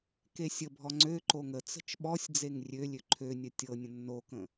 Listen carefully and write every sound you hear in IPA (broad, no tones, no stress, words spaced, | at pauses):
kesʲəbʱɔ ŋ͡ǀøǃo ŋə t͡sə̤t͡ʃɓɔsʲd͡zeŋ rʲølʲø ǃʰønʲə tʲɤnʲə̃ nːokə̃